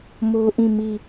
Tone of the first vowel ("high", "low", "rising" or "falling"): high